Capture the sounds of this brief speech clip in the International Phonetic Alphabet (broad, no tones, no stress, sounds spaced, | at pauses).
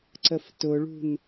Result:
ǀ ə f t ʊ ɭ ṳ n